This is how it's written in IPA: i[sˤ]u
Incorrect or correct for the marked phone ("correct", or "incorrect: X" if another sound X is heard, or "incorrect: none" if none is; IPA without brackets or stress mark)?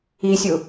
incorrect: sʲ